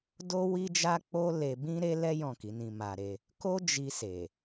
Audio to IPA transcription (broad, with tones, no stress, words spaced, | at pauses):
do˦ wi˦d͡ʒa˦k͡po˦le˧ bĩ˦ ɾe˦lɛ˦ jɔ̃˦˨ki˨˦nĩ˧ma˧ ɾe˧ | ko˦ d͡ʒi˧se˨